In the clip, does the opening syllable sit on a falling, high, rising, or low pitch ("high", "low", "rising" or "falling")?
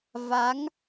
rising